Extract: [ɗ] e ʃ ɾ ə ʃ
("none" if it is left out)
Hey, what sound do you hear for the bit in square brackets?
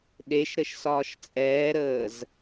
ɗ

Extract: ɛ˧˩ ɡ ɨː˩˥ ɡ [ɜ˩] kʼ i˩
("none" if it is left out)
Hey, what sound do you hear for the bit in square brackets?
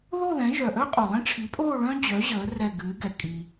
ɛ˩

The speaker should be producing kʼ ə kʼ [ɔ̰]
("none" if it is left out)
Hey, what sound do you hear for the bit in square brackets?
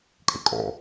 ɔ̰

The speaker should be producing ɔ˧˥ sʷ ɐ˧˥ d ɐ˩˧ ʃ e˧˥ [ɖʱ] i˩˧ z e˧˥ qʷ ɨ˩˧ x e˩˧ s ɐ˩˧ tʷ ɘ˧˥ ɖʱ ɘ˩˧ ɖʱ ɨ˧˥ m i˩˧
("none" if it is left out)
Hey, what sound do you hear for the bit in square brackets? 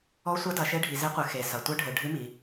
ɖʱ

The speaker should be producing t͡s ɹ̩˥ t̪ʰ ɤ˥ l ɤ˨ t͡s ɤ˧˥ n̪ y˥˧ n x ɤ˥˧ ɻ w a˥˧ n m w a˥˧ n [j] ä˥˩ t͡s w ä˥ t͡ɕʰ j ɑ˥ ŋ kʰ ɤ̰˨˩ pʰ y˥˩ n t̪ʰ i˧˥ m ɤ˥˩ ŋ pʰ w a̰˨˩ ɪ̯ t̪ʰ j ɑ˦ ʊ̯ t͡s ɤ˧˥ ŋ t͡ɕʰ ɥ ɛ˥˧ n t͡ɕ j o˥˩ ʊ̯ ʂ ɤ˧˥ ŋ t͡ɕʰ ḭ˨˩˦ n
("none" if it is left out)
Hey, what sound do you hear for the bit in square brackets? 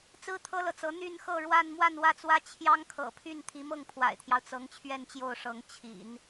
w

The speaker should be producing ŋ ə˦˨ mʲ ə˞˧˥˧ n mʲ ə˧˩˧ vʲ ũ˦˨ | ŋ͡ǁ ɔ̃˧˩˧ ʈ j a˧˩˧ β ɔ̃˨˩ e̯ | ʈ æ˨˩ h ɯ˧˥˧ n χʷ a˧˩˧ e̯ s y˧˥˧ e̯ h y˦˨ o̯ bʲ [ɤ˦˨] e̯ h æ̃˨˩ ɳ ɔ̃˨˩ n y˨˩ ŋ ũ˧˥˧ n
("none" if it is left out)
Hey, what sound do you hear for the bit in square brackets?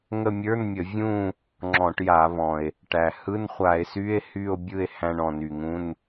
ɯ˦˨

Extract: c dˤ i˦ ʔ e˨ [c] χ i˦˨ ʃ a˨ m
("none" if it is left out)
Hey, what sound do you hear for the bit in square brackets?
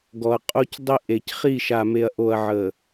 c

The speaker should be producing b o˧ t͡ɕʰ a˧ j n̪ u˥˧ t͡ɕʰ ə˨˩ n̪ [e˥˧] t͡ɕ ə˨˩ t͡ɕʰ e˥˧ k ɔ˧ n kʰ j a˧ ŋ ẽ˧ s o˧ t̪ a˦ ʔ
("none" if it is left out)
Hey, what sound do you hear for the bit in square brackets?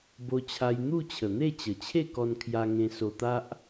e˥˧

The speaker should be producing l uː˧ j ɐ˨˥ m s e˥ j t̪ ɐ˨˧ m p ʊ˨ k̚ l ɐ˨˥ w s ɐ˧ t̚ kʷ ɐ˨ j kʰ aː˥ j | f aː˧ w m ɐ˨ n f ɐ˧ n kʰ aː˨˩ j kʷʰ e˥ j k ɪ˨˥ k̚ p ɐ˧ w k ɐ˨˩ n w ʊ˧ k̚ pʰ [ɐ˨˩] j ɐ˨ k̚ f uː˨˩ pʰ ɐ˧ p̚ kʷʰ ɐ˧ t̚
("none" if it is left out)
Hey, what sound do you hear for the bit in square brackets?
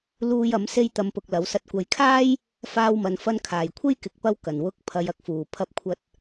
ɐ˨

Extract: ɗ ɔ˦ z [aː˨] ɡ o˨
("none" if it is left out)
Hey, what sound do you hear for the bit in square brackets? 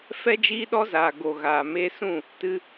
aː˨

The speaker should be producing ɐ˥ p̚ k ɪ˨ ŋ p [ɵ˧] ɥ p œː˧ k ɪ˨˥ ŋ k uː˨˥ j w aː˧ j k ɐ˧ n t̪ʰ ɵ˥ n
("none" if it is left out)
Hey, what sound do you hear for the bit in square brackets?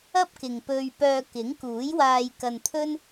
ɵ˧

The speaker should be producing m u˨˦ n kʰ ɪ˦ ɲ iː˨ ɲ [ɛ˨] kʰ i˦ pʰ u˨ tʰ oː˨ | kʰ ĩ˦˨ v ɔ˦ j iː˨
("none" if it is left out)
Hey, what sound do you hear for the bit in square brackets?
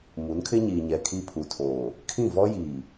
ɛ˨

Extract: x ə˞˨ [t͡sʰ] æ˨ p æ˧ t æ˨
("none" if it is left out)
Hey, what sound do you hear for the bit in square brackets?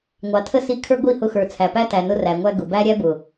t͡sʰ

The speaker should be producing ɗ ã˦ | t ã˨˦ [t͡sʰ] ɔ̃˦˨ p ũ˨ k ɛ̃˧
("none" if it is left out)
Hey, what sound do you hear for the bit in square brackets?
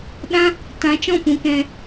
t͡ʃ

